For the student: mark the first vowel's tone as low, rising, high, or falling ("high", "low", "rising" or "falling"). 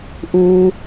low